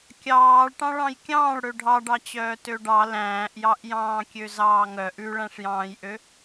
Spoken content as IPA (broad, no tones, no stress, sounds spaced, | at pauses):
kʲ ɑː ɭ ʈ ɑ̃ ɭ ɑ̃ j kʲ ɑ̃ː ɭ ɽ ø ɖʱ ɑ ɖ ɑ t͡ɕ œː t ø ɖ ɑ l æ̃ː ʔ j ɑ ʔ j ɑ̃ː kʲ ø z ɑː ŋ œ ʔ ʉ ɭ æ̃ ʂ j ɑ̃ː j ʔ ø